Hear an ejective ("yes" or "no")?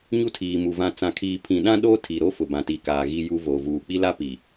no